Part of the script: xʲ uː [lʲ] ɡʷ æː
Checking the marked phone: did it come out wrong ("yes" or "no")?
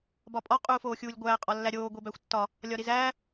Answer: no